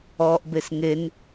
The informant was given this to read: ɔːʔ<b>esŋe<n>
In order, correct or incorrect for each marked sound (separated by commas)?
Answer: correct, correct